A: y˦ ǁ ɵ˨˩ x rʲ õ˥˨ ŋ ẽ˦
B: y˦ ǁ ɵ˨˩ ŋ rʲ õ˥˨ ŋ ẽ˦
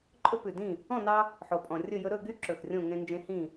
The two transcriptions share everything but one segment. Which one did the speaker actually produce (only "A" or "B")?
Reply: A